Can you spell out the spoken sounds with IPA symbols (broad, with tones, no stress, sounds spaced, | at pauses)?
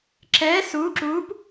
ǁ ɛː˨˥ s uː˨˥ ǁ uː˨˥ p